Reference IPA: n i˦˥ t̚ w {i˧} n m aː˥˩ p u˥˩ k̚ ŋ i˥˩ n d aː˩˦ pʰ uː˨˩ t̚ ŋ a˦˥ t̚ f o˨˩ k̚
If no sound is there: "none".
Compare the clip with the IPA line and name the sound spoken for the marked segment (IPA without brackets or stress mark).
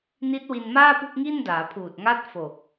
i˧